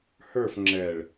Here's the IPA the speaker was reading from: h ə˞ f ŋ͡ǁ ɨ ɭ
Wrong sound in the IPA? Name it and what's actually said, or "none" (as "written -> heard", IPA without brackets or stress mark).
ɨ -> ɛ